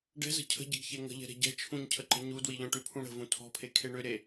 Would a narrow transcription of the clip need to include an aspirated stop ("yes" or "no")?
yes